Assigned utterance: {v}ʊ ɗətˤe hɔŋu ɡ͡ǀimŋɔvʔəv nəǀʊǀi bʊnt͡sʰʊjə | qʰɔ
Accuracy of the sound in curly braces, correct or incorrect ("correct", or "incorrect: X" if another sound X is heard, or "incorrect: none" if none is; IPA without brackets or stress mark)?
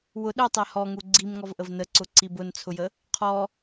incorrect: w